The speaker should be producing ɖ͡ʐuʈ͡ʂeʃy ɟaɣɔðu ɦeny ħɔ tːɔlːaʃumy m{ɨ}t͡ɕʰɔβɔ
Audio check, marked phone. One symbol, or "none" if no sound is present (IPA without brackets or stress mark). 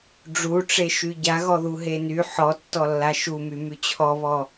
y